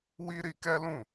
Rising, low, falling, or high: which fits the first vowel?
high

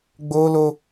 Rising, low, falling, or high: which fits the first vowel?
high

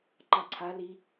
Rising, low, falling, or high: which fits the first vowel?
falling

